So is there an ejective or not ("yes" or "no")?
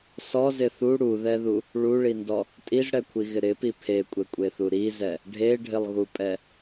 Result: yes